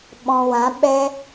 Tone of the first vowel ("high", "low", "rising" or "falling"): low